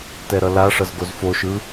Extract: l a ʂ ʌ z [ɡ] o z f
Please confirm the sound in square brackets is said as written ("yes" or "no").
yes